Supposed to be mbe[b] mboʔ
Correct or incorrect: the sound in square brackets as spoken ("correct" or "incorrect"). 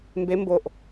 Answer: incorrect